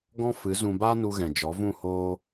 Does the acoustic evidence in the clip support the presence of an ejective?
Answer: no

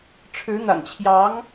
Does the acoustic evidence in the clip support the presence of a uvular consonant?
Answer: no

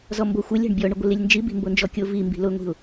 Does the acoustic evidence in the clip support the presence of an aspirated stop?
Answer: no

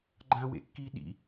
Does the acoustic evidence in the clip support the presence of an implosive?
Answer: yes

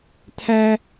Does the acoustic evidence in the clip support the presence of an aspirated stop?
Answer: yes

